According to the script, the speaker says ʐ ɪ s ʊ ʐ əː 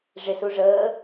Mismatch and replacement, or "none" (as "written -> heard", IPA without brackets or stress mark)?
ʊ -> u